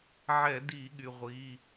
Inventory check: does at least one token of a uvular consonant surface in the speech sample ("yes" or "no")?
yes